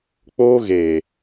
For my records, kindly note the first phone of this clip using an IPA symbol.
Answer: k͡p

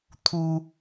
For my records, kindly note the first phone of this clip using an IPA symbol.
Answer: t̪ʰ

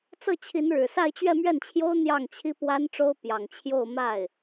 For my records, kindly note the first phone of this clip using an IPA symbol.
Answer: t͡s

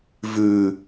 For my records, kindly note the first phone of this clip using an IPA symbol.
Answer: v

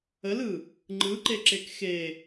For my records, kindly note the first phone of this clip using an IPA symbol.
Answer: ə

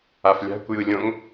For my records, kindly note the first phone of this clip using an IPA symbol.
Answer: a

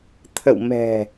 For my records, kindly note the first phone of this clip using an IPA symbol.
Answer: t̪ʰ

